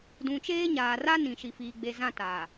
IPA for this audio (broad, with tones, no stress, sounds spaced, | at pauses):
d ũ˨ t͡ʃ eː˦ ɲ aː˨ r a˦ n ĩ˨ ʃ i˨ f iː˨ ɡ͡b e˨ z ã˦˨ t a˨